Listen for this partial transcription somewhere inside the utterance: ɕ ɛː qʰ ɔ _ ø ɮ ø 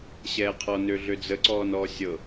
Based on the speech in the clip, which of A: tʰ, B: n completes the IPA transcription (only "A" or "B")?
B